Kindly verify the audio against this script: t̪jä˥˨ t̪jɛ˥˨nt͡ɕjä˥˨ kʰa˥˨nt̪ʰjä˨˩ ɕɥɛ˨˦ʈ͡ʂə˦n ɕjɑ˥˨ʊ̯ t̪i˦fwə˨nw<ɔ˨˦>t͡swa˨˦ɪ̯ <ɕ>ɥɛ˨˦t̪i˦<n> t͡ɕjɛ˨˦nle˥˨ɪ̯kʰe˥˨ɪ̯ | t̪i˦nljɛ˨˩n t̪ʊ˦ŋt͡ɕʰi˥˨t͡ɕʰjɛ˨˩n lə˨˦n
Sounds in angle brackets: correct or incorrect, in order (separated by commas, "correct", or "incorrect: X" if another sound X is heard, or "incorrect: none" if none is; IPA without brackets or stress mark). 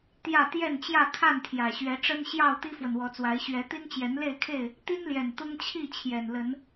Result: correct, correct, correct